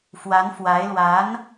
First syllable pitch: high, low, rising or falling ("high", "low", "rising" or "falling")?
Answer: rising